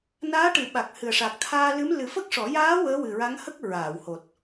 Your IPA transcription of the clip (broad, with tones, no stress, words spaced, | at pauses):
naː˧˥ʈɨ˨˩˨ ɓa˨˩k̚hɨ˨˩ə̯ʂa˨˩k̚ t̪ʰaː˧lɨ˧˥m lɨ˨˩˦fə˦˥k̚ʂɔ˨˩˦ jaː˧˥ wəː˧˥wɨ˨˩ɹa˧˥ŋhə˦˥k̚ ɹaː˨˩˨who˨˩t̚